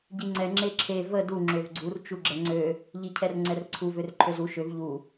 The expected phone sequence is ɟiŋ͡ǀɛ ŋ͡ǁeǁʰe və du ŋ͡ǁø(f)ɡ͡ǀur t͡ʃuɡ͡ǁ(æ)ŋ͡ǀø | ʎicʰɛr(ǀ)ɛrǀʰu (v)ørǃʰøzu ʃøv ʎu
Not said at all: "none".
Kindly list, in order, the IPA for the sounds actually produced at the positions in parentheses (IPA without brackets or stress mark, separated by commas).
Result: v, ɛ, ŋ͡ǀ, v